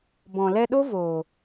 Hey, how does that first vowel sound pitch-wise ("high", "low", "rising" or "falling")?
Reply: low